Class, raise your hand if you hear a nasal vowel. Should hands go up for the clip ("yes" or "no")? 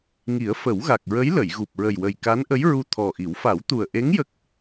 no